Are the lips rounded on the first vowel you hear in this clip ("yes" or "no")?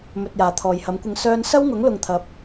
yes